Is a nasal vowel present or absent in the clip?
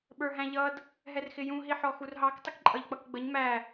present